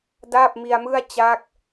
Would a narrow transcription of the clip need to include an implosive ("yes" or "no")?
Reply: no